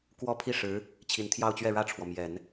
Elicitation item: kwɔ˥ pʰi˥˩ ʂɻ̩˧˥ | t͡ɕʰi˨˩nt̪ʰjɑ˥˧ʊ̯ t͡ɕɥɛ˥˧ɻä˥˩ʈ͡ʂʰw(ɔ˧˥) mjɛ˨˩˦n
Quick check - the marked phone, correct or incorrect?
incorrect